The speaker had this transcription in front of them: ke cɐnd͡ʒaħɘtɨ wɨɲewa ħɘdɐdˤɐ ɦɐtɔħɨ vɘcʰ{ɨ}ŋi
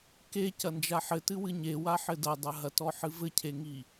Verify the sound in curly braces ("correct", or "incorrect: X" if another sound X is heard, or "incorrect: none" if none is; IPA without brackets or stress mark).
incorrect: e